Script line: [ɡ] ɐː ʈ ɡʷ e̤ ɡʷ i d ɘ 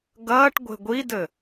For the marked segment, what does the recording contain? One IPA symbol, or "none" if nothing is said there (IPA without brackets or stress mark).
ɡ